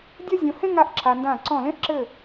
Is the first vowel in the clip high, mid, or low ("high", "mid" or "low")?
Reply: low